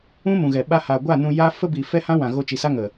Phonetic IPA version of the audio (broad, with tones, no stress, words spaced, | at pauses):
ũ˦mũ˨ɣɛ˨ ɓa˧haː˨ɡʷa˦˨ nũ˧ja˦ fə˦bi˨ fɛ˦hã˦wã˨ ɣo˧t͡ʃi˨sa˦ ŋə˨